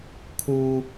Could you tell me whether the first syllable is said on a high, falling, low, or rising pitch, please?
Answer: low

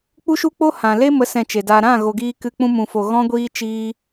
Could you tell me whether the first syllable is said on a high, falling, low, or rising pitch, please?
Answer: high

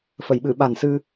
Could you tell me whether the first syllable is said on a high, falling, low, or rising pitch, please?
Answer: low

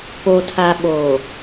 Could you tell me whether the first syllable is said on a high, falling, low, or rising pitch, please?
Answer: low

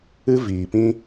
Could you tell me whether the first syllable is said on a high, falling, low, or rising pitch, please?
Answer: high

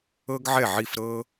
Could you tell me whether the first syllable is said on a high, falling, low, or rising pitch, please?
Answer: high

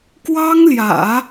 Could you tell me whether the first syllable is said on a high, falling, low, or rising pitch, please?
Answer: high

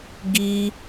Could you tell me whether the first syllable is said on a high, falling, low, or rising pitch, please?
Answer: high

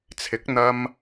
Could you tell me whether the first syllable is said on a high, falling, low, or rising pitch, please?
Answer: rising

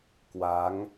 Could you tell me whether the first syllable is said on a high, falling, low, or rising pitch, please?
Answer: rising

